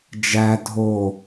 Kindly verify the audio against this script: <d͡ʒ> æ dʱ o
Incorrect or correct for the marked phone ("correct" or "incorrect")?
correct